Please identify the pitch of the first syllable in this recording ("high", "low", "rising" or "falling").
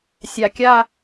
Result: low